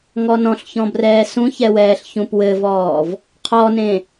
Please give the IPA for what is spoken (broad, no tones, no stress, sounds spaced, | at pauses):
ŋ ɔ n ɔ̃ ɬ ç ɔ̃ b r ɛː s ũ ç ɛ w ɛː ɬ ç ũ p w ɘ v ɔː v | qʰ ɔ n ẽ